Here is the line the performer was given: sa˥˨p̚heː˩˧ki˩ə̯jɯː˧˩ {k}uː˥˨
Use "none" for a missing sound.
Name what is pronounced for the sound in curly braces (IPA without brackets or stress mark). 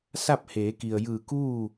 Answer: k